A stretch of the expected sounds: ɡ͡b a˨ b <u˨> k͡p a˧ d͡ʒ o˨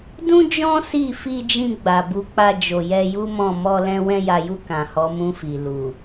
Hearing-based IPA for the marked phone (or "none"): u˨˦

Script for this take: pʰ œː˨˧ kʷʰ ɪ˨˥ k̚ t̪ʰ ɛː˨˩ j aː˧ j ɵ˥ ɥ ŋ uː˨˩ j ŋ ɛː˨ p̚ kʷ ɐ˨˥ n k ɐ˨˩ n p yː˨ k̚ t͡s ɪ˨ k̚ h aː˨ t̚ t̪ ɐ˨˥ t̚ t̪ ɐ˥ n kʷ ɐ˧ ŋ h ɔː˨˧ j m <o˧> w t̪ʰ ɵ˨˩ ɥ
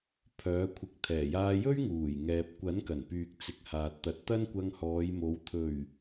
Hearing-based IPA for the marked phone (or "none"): o˨˧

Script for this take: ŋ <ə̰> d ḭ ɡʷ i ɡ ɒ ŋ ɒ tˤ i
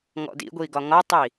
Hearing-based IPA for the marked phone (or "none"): ɔ̰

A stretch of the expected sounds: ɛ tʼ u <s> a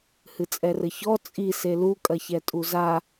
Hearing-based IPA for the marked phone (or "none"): z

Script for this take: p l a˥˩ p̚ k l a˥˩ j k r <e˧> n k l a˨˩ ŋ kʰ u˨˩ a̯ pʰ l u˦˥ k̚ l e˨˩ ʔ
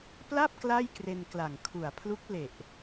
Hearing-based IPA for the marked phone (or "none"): e˧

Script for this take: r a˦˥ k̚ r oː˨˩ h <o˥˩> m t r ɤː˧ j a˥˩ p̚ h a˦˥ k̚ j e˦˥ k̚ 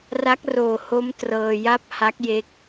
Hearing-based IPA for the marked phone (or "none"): o˦˥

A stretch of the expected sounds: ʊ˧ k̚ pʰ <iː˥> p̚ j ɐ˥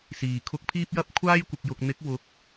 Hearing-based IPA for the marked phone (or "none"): iː˥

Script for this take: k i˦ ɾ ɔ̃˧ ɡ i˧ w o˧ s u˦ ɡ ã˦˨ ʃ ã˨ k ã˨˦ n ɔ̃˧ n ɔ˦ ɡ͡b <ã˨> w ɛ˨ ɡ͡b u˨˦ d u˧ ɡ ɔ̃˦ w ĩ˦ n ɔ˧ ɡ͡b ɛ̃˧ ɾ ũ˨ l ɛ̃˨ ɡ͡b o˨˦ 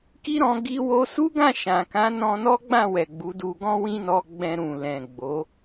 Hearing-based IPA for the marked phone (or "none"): ã˦˨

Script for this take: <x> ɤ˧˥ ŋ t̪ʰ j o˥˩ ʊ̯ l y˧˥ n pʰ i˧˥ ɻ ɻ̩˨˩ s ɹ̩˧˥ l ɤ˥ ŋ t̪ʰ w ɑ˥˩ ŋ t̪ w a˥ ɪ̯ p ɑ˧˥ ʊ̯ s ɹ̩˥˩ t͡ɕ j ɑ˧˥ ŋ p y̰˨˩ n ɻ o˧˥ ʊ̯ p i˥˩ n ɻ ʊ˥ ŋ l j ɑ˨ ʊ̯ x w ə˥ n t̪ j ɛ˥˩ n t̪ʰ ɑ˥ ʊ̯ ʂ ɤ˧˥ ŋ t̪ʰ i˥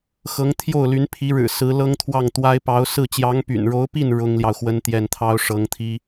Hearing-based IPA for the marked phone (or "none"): x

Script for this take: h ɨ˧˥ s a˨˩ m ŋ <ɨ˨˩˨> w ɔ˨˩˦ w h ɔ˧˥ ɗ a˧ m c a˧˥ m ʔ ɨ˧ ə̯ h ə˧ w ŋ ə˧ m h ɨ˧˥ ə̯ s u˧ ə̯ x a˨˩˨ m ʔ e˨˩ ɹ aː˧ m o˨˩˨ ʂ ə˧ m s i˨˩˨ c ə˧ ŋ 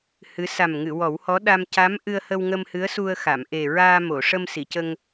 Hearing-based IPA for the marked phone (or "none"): ɨ˨˩˨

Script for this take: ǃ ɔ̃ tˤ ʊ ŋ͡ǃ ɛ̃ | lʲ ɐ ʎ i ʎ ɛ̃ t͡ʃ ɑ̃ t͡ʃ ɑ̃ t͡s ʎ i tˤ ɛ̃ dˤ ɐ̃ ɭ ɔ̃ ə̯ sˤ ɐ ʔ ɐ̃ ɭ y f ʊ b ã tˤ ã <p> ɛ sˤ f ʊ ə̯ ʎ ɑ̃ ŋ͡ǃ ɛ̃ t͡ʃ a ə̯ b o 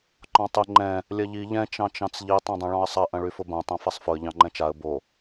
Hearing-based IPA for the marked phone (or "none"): f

